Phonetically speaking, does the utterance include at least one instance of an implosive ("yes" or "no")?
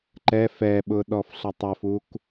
yes